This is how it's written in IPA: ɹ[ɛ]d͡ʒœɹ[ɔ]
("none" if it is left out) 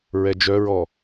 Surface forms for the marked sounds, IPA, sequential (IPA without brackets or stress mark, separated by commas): ɛ, ɔ